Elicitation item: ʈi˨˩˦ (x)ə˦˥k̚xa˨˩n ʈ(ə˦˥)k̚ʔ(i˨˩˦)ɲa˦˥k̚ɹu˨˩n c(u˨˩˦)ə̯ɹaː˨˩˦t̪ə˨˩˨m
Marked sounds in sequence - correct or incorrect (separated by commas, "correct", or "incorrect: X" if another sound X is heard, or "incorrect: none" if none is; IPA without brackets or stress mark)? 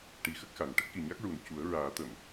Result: correct, correct, incorrect: i˨˩, correct